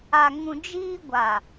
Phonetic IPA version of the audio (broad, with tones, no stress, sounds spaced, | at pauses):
a˨ ŋ ũ˨ d͡ʒ iː˦ ɡʷ a˨